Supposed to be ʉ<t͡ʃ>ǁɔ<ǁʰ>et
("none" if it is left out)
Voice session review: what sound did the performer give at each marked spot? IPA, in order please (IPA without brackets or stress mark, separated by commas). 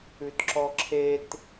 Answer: t, ǁʰ